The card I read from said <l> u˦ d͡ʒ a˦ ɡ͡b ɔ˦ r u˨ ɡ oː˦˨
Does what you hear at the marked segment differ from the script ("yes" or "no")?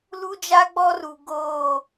no